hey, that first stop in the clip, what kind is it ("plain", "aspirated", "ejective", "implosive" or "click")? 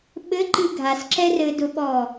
implosive